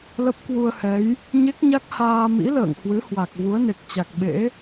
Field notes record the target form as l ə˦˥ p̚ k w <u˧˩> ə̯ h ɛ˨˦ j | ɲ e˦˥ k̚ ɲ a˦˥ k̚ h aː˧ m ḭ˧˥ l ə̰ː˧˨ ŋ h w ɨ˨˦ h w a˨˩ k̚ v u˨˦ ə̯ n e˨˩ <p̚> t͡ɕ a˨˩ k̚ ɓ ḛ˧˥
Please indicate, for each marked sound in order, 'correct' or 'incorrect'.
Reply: incorrect: u˧, incorrect: k̚

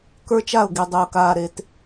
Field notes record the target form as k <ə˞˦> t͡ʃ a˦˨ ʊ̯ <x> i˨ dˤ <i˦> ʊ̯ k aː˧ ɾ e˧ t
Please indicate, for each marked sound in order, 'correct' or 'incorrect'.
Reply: correct, incorrect: ɡ, incorrect: i˨

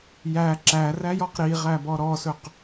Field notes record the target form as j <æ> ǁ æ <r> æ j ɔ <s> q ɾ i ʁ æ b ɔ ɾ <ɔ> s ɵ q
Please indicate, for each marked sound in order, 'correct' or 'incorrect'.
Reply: correct, correct, incorrect: none, correct

